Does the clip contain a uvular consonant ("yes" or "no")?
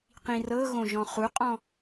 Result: yes